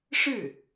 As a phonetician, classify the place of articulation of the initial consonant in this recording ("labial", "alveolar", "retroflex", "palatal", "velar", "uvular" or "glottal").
retroflex